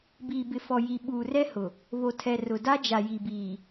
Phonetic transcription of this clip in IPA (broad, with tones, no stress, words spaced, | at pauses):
biː˨ bɪ˨fɔ˨ ji˨ɓuː˨rɛ˦hʊ˨ | βo˨tʰɛ˨ rʊ˨da˦d͡ʒa˨ ji˨biː˨